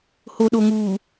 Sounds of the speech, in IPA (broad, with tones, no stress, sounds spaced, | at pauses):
h o˨ ɗ o˨ ŋ uː˨